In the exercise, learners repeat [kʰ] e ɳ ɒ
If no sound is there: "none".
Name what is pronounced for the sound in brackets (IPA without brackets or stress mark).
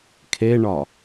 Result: kʰ